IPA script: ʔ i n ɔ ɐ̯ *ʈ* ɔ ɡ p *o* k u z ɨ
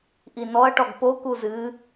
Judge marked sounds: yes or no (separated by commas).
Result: yes, yes